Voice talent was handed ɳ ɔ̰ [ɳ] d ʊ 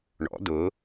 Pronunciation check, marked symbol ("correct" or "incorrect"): incorrect